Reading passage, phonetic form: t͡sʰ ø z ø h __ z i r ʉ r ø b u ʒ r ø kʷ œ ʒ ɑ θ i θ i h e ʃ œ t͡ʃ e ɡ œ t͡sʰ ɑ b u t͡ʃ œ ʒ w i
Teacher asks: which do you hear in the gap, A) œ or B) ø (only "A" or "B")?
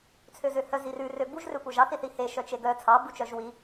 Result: A